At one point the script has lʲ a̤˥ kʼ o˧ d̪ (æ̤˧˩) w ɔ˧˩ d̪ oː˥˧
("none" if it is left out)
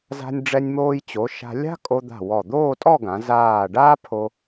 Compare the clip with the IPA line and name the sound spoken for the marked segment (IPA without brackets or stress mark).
a̤˧˩